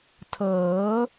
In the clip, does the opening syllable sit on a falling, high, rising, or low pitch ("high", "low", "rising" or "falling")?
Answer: rising